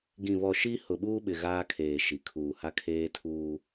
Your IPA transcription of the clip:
ɡ ĩ˨ β ɔ˨ ʃ i˦ h ʊ˨ ɓ uː˦ ɓ ɪ˨ ɣ aː˦ kʰ eː˨ ʃ i˨ kʰ uː˨ h a˦ kʰ eː˦ tʰ uː˦

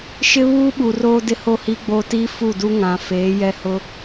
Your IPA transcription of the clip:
ʃ ɪ˦ β uː˦ ɓ u˨ r oː˦ d ɪ˦ h o˦ h iː˦ ɡ͡b oː˦ t iː˦ f u˦˨ d u˦ ŋ ã˨ f eː˨˦ j ɛ˦ h ʊ˦

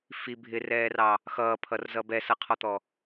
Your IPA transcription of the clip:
f i bʱ ɪ r ɛː r ɑ | x ʌː pʰ ʌ r z ʌ b ɛ s ʌ qʰ ɔ t̪ ɔ

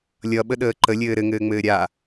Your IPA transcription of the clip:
lʲ ʌ ɓ ə ɗ əː ǃ ə lʲ ɘː ɾ ɘ ŋ ɘː ŋ͡m ɘː ɾʲ a

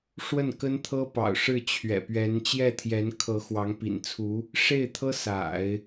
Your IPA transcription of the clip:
ʂ w ə˥˩ n k ə˥ n t̪ʰ ɤ˥ p ɑ̰˨˩ ʊ̯ ʂ ɻ̩˥˩ t͡ɕʰ ɥ ɛ̰˨˩ p ɥ ɛ˧˥ n t͡ɕ j ɛ˥˩ t̪ʰ j ɛ˧˥ n kʰ ɤ˧˥ x w ɑ˧˥ ŋ p ḭ˨˩ n t͡sʰ u˧˥ | ʂ e˥˩ ɪ̯ t̪ʰ ɤ˥ s a̰˨˩˦ ɪ̯

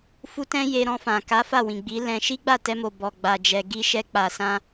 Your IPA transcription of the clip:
f u˦ t ɛ̃˦ j e˧ ɾ ɔ̃˧ f ã˨ k a˨˦ f a˦˨ w ĩ˨ ɡ͡b i˨˦ l ɛ̃˧ ʃ i˦ ɡ͡b a˦˨ t ɛ˧ m o˨ b ɔ˨ ɡ͡b a˨ d͡ʒ ɛ˨ ɡ i˧ ʃ ɛ˧ k͡p a˨ s ã˧

